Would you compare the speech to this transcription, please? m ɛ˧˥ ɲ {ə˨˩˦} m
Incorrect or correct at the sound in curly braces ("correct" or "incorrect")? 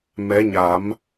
incorrect